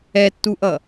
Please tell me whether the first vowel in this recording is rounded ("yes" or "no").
no